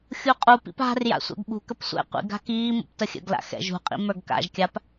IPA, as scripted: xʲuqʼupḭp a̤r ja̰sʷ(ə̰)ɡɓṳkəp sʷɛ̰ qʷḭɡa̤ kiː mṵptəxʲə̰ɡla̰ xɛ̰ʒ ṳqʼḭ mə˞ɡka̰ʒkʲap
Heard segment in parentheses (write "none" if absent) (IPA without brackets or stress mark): ɛ̰